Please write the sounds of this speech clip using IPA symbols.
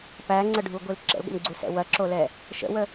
p æ ŋ͡ǀ ə ɖʱ u ɡʷ i l ǁ ə̰ l ɡʷ ə̰ m ɡ͡ǀ u s ɛ̰ w ɐ ǁ o l ɛ | ʃ ə̰ w ə

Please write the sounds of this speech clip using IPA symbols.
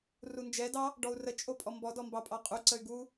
r u n d͡ʒ ɛ d ɑ | ɖ ɔ u̯ r ə t͡ʃʼ o pʼ ɔ m b ɔ d ɔ m b ɑ pʼ ɑ qʼ u ǀ ə y̯ ɡ u

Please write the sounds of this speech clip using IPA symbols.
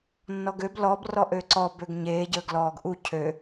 nː ɔ ɡ ø b l ɔ b r ɔ ʔ øː ǀ ɔ b ø ɡ ɲ eː ɟ əː ɡ l ɔː ɡ ʔ u cʰ ø

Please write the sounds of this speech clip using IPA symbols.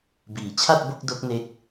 b iː˩˦ t͡ɕʰ a˥˩ t̚ b o˥˩ k̚ d o˦˥ k̚ n e˦˥ k̚

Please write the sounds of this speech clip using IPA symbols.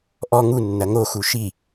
ʔ ɔ ŋ u nː ɐ ŋ o x u ʃ i

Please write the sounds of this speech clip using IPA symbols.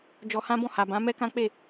d͡ʒ ɔ˧ h ã˦ b ɔ̃˦˨ h a˨ b ã˨˦ m ɛ˦ k ã˦ k͡p e˦˨

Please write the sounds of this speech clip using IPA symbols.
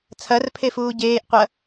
t͡sʰ ɐ r pʰ e f uː ɟ eː ʔ qʷ ɐ

